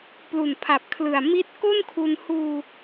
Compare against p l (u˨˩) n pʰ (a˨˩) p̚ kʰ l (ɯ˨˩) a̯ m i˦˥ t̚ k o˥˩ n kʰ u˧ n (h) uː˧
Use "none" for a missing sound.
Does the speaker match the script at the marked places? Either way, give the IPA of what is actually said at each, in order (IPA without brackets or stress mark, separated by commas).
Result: u˨˩, a˨˩, ɯ˨˩, h